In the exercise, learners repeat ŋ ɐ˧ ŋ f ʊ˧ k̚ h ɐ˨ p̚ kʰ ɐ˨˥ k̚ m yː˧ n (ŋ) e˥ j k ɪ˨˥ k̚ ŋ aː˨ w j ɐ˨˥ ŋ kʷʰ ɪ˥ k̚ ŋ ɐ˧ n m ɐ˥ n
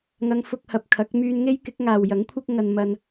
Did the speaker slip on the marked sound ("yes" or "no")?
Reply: no